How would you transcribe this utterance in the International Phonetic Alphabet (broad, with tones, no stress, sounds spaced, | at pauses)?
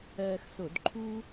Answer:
ɜː˧ x s o˧˩˧ d ǃʰ u˥